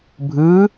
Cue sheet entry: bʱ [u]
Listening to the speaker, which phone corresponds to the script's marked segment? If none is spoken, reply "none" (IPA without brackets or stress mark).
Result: ɯ